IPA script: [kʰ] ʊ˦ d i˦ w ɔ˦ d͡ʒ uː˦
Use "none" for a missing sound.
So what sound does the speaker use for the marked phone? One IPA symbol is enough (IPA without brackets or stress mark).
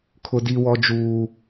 kʰ